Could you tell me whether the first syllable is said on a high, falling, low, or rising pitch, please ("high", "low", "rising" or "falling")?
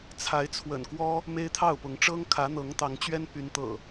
rising